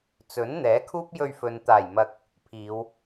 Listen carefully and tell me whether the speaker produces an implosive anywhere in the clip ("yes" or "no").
no